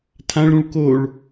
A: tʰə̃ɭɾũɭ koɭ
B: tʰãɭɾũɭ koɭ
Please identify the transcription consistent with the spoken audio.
B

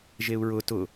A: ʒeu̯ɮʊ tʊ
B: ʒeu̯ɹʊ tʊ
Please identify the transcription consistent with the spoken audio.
B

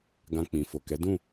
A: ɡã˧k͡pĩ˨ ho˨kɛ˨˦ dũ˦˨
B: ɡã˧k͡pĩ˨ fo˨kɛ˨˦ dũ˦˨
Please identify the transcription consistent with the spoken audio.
B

